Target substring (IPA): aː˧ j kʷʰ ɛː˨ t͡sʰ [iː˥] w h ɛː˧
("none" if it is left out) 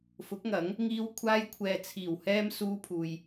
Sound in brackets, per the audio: iː˨˩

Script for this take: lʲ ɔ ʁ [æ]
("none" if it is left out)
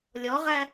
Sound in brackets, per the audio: æ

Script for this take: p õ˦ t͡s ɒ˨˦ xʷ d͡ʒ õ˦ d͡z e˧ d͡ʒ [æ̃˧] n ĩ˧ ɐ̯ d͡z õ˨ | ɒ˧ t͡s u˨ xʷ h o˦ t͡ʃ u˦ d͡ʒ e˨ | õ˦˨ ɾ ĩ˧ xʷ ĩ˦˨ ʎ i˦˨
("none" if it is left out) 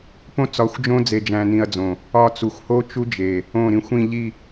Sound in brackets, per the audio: æ̃˧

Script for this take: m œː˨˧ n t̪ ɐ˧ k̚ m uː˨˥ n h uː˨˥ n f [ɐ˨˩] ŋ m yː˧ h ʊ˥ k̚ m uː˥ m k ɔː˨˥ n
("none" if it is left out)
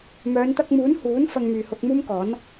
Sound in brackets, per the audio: ɐ˥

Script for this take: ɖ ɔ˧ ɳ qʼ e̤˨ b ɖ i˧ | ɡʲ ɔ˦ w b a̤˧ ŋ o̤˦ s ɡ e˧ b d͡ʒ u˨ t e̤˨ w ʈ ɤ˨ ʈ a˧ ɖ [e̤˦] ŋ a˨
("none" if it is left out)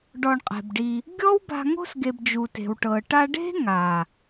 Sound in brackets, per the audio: e̤˦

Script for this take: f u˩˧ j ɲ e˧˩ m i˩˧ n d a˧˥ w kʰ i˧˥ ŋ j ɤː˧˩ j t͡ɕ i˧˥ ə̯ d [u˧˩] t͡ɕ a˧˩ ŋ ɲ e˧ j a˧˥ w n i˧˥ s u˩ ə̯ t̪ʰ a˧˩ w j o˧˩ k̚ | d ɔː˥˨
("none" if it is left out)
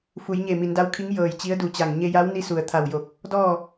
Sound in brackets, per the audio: u˧˩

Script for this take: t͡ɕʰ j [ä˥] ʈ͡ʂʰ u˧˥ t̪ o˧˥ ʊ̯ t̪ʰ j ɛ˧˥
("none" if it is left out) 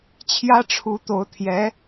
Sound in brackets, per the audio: ä˥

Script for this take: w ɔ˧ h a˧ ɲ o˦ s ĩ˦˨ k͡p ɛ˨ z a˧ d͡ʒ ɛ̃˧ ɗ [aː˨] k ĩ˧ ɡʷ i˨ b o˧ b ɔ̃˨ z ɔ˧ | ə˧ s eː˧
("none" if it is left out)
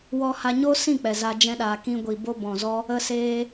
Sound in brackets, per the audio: aː˨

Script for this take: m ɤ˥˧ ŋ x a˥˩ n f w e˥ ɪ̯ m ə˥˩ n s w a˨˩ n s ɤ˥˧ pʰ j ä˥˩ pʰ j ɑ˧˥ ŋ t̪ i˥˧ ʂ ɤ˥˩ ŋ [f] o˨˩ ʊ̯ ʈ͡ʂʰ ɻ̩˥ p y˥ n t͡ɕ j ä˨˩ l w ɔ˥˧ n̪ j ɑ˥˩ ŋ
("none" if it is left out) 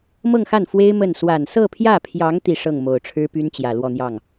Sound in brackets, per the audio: m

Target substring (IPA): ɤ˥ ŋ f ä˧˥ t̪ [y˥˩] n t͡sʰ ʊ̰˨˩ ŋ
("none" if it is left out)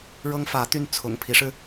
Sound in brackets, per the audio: y˥˩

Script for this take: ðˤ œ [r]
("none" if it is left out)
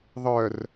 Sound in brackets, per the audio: r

